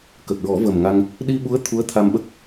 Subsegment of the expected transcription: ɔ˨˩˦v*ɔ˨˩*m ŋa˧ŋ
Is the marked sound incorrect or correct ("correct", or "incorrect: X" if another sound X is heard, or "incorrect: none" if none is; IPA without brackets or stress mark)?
incorrect: ə˨˩